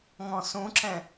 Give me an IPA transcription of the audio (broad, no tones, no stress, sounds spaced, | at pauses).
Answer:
ŋ ɔ̃ s ũ ǁ ɛ̃